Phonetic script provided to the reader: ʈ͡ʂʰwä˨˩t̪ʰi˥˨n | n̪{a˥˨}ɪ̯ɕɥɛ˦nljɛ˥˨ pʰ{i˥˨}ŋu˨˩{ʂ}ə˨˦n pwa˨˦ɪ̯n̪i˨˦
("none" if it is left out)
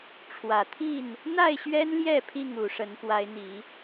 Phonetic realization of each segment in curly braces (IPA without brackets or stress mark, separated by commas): a˥˨, i˥˨, ʂ